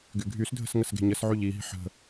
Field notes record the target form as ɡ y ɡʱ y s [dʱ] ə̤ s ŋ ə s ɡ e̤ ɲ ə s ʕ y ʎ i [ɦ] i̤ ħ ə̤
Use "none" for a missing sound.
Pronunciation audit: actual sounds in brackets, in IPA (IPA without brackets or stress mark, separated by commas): dʱ, ɦ